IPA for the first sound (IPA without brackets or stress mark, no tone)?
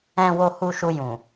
ɛ̃